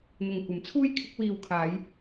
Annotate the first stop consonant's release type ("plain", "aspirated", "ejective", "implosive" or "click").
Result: plain